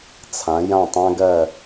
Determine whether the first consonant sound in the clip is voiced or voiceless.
voiceless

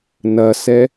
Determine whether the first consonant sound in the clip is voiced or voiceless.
voiced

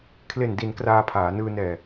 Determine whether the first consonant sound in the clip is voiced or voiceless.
voiceless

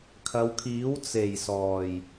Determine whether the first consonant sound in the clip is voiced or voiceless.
voiceless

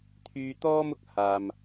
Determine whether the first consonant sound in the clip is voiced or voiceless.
voiceless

